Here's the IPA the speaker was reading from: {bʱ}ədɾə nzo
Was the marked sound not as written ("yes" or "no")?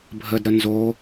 no